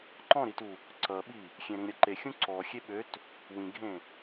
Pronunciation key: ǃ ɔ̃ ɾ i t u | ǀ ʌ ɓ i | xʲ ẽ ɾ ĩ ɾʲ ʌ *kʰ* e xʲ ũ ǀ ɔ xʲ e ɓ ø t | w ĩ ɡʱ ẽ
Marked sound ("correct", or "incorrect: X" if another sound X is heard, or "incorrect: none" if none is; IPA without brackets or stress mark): incorrect: ǃ